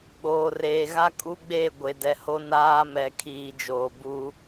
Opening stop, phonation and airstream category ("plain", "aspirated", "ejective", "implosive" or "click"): implosive